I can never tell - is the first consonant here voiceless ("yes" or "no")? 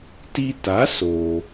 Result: yes